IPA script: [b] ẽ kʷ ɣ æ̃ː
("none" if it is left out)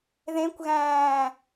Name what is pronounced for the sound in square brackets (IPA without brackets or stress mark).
ð